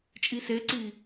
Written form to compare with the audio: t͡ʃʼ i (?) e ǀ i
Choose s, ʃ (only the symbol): s